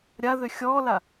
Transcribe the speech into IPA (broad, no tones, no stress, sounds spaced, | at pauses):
ɾʲ a ð ø xʲ ɔː l a